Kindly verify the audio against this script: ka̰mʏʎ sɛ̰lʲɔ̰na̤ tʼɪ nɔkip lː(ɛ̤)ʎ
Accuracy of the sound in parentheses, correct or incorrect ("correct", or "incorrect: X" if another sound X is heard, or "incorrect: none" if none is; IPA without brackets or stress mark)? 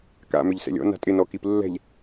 correct